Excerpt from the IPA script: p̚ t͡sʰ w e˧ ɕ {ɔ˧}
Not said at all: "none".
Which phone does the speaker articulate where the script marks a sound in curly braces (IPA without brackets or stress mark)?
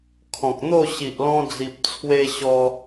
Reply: ɔ˧